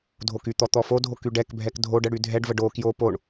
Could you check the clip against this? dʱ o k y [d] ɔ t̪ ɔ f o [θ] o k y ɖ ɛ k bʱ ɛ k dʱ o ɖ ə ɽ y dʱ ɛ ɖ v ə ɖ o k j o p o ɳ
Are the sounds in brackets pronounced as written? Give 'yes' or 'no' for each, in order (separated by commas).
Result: no, no